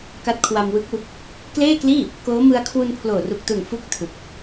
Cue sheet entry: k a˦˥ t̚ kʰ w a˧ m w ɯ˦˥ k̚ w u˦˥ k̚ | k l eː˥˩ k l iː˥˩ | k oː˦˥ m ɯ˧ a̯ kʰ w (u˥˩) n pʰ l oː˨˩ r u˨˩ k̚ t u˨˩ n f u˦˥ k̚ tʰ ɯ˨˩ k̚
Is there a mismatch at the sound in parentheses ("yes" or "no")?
yes